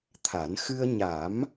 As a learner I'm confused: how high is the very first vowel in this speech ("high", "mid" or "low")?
low